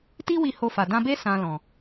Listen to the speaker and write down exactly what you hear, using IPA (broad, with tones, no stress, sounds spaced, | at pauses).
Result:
t i˦ w i˧ h o˧ f a˨ d ã˧ b e˦ s ã˧ l ɔ̃˨